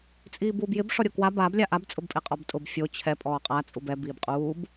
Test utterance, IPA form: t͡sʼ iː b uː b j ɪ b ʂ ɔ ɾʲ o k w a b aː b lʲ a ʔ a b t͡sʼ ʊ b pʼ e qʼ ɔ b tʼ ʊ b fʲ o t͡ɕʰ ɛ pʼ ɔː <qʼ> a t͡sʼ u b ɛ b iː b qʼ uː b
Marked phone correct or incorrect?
correct